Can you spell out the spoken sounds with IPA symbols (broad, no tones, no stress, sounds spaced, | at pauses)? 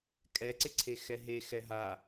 kʼ ɛ ǀ ɪ ǀʰ e x ɛ ɦ e x ɛ ɦ a